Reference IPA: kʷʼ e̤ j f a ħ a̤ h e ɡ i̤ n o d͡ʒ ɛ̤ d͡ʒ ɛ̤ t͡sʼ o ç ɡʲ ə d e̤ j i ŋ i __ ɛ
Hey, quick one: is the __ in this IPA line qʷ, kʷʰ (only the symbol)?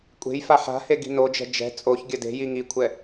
kʷʰ